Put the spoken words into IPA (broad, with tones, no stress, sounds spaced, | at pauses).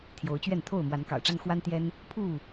t̪ʰ j o˨˦ ʊ̯ t͡ɕ ɥ ɛ˥˨ n t̪ʰ o˥˨ ʊ̯ m w a˨˦ n k ɑ̰˨˩ ʊ̯ ʈ͡ʂ a˦ n x w a˦ n t̪ j ɛ˦ n | pʰ u˥˨